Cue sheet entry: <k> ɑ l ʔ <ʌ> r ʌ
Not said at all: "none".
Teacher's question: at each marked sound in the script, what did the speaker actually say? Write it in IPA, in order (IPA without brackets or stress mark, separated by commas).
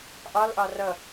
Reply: ʔ, ɑ